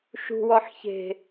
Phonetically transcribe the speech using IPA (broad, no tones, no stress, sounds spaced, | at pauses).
ʃ ṳ w ɔ ħ ç e̤